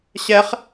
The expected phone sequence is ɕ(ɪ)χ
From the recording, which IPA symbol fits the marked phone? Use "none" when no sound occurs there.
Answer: ɛ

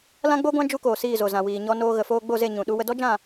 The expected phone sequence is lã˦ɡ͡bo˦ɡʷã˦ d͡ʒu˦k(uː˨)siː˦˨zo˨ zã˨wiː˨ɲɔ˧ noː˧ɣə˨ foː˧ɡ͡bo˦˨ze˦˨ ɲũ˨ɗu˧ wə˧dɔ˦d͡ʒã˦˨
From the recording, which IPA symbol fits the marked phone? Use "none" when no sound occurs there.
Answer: oː˨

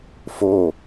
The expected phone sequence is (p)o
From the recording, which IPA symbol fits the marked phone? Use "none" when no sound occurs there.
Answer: f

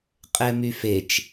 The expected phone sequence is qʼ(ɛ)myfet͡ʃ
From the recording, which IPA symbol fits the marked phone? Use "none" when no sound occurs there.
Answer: ɛ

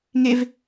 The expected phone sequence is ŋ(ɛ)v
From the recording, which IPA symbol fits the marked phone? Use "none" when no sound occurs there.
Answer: e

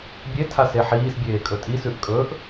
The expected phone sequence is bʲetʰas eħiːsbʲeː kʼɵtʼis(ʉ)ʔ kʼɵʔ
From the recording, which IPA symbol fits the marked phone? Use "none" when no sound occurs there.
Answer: ʉ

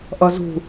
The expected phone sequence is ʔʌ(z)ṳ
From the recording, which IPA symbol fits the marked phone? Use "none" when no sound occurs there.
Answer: z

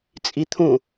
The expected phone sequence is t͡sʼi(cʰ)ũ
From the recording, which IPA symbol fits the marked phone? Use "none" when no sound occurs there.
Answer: t̪ʰ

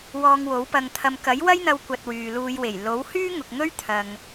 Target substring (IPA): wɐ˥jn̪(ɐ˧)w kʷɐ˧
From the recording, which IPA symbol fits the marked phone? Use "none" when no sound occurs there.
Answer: ɐ˧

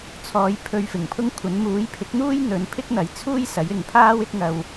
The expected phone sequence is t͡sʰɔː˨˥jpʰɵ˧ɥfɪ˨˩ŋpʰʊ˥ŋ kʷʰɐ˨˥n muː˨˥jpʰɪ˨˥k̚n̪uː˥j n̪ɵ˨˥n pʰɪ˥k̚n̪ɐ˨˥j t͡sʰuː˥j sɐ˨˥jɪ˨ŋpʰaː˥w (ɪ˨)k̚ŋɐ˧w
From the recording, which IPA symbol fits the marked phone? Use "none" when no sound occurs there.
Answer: ɪ˥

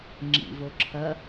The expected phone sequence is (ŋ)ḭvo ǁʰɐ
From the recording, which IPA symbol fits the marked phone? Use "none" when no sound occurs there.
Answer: ŋ͡ǁ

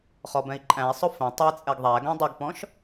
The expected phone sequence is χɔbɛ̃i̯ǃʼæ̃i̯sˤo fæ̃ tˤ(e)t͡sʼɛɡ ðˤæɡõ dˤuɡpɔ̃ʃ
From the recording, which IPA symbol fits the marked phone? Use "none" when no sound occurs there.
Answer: ɛ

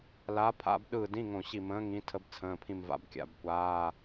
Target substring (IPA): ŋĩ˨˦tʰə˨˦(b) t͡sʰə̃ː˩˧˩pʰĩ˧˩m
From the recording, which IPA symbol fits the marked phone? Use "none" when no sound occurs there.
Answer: b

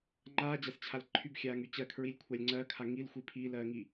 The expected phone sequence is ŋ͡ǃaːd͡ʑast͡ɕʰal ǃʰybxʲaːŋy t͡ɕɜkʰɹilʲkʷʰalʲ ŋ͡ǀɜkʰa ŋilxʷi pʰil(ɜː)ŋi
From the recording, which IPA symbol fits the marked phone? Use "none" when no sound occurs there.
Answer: ɜː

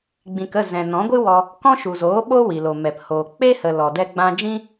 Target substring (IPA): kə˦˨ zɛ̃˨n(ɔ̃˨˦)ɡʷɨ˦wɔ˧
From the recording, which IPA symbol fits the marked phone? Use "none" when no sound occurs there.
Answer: ɔ̃˨˦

